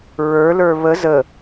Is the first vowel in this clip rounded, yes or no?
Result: no